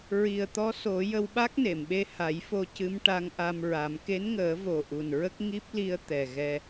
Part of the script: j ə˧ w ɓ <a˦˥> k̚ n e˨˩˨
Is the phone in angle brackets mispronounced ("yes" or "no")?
no